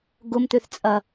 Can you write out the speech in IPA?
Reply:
ɡ ʊ m t̪ ø θ t͡sʼ ɐ

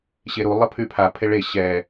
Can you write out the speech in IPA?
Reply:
ɕ e ɾ u lˠ ə pʰ y pʰ a pʰ e ɭ e ɕ ɛ

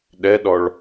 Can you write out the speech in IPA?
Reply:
ɗ ɛ ɗ ɔ ɭ

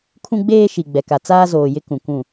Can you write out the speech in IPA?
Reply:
kʰ ũ˦ ɡ͡b eː˦ ʃ i˨ ɡ͡b ɛ˨ k a˨ t͡s aː˦ z oː˨ j ɪ˦ k ũ˨ kʷ ũ˦˨

